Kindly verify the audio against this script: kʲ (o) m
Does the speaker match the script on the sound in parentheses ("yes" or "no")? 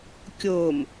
yes